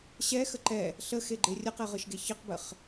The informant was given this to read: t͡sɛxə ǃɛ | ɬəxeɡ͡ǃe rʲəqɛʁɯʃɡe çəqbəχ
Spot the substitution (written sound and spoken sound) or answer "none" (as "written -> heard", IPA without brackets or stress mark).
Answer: t͡s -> ɕ